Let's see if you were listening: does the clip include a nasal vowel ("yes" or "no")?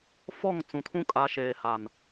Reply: yes